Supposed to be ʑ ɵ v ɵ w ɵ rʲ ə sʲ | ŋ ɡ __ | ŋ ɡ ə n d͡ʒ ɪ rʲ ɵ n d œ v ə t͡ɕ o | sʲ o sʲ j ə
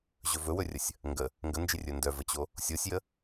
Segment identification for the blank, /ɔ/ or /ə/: ə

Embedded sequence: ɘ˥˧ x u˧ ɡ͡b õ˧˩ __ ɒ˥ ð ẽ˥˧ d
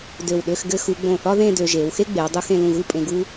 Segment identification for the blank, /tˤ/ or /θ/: θ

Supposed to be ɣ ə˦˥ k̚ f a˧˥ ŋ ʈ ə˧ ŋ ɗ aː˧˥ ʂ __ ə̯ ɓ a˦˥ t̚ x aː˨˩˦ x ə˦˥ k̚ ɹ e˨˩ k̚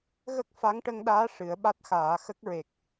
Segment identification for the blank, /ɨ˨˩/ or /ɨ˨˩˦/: ɨ˨˩˦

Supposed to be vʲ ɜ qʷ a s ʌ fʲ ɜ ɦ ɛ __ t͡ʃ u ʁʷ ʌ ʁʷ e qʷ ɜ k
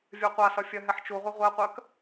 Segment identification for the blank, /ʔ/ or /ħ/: ħ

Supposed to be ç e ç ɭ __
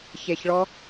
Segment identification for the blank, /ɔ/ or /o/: ɔ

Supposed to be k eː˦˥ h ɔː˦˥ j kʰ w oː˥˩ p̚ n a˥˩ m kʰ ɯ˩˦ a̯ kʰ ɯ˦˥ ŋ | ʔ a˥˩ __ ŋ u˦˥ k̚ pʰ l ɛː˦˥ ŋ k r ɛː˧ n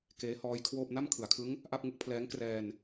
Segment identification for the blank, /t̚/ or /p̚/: p̚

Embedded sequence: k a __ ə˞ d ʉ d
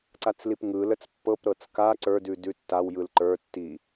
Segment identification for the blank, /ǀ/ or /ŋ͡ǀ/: ǀ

